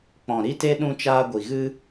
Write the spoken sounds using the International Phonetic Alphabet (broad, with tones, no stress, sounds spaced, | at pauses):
k͡p ɔ̃˨ ɾ i˦ t e˦ ɗ ũ˧ t͡ʃ aː˧ ɡʷ i˨ ɣ ɨ˧